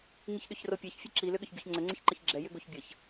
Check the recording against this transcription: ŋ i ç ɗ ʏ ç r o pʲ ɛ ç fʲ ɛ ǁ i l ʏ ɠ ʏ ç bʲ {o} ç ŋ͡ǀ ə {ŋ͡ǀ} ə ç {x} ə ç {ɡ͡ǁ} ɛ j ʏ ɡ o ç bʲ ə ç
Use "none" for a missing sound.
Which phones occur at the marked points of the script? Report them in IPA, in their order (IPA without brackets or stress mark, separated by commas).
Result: o, ŋ͡ǀ, ǃ, ɡ͡ǁ